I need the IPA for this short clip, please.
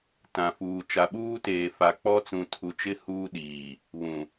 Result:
tã˨fuː˨ t͡ʃa˨ɓuː˦teː˨ fa˨k͡pɔ˦t͡sũ˨ tʰu˨t͡ʃɪ˦ huː˦ɗiː˨ | βũ˨

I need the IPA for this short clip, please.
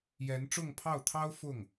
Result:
jɛ˧˥nʈ͡ʂʊ˥˧ŋpʰɑ˥˩ʊ̯t̪ʰɑ˥ʊ̯ fʊ˥˩ŋ

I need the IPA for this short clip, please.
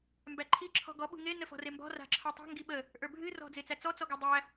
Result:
mbæǃʰi ǁʰɔ̤ɡɔ ɓṳŋe nəfɔ̤rembɔ̤ ra̤ǁʰə˞tˤe̤ ŋɡiɓə | ʔə˞bʱɨ rɔ̤d͡zet͡sæt͡sɔ t͡sɔɡadˤæ

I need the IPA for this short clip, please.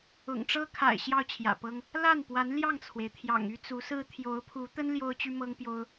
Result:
ʊ̰˨˩ŋʈ͡ʂɤ˥kʰa̰˨˩ɪ̯ ɕjɑ˥˩ʊ̯t͡ɕʰjä̰˨˩pɤ˥ŋ | la˥˩npwa˧˥n ljɑ˥˩ŋt͡sʰwe˩ɪ̯t̪ʰjɑ̰˨˩ŋ y˥t͡su˧˥sɹ̩˥ t̪ʰjo˧˥ʊ̯pʰu˧˥ t̪ə˥n ljo˥ʊ̯t͡ɕy˥mɤ˥ŋpjo˥ʊ̯

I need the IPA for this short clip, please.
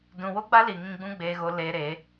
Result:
dũ˨wo˦ɡ͡ba˦li˨ ŋĩ˧ɡ͡bũ˦ɡ͡beː˧ɣo˧ le˧ɾe˨˦

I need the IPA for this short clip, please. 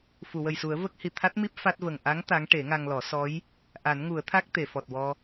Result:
fu˨˩˨wə˨˩jsu˨˩˦ə̯ və˦˥k̚ hi˨˩ t̪ʰa˦˥t̚mi˦˥p̚ fa˦˥t̚və˨˩ŋ ʔa˧˥ŋ t̪a˧˥ŋ ʈe˨˩˦ŋa˧ŋlɔ˨˩˦ sɔ˧˥j | ʔa˨˩˦nŋu˨˩˦ə̯t̪ʰa˦˥k̚ t̪e˨˩˨fɔ˨˩t̚wɔ˧

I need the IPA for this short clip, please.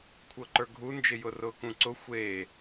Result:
kʷʰɤǃə˞ɡʱund͡ʒɪ jʊrʊːkũǀʊ xʷe

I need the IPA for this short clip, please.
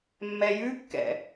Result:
mːɛjʉkːɛ̰

